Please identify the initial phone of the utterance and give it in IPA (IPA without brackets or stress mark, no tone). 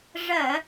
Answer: ʐ